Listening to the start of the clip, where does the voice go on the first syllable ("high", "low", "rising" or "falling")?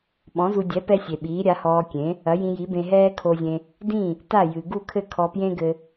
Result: rising